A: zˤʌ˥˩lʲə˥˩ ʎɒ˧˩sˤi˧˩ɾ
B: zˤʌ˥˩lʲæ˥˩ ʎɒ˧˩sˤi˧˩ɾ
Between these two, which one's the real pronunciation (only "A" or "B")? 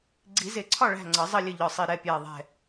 A